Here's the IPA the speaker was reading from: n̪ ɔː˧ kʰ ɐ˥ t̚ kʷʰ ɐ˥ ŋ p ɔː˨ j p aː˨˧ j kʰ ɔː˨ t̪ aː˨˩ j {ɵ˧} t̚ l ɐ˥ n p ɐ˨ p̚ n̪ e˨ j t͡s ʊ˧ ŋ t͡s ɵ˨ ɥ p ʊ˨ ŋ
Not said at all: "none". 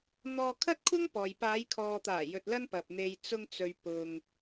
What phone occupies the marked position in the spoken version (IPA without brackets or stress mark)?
ɵ˧